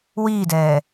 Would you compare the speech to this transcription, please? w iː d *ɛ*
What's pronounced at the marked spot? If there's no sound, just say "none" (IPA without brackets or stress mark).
ɛː